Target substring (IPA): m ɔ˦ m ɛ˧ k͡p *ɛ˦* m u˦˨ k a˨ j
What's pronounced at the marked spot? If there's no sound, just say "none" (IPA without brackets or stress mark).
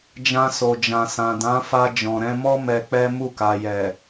ɛ˦